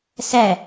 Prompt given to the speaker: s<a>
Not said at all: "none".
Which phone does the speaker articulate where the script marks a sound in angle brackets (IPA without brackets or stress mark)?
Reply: æ